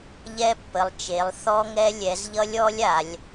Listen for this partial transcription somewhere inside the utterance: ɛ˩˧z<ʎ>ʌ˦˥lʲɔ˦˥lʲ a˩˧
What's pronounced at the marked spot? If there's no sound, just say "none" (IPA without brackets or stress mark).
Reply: ʎ